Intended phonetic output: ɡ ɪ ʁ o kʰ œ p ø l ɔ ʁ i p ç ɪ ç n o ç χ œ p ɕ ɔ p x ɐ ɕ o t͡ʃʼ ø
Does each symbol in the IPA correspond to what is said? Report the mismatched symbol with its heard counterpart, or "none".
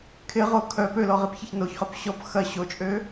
ɡ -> kʰ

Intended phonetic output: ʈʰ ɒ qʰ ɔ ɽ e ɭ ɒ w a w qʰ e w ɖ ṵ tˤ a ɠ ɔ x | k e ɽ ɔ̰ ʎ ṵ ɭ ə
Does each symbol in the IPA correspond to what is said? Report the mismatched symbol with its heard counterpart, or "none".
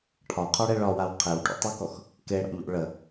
ɠ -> k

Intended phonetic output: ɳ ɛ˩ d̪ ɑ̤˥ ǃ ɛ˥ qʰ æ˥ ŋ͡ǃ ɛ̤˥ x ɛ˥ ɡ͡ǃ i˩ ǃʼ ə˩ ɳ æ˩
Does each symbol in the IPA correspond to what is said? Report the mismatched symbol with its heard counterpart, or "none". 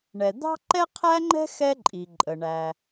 ɡ͡ǃ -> ǃʼ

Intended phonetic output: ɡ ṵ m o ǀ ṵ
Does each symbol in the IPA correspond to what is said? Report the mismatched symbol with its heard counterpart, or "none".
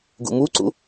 o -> u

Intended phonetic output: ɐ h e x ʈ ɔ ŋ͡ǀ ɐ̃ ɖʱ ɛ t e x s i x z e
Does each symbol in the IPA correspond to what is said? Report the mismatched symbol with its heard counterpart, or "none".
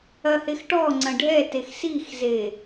none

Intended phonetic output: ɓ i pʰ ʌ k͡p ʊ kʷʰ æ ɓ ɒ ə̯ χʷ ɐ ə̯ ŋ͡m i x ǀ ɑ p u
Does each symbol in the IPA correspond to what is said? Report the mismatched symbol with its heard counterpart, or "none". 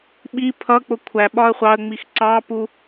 ɐ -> ɑ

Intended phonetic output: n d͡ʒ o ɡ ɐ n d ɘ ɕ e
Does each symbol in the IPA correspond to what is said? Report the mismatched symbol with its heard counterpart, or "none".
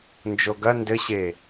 none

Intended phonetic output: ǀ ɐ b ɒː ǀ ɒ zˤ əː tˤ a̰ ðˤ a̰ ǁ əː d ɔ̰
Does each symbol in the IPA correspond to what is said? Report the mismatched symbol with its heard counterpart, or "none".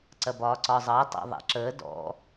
none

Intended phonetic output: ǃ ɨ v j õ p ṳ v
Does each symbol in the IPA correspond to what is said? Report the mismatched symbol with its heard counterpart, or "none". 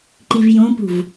ɨ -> i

